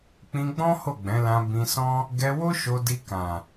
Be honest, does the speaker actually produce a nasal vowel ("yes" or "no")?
yes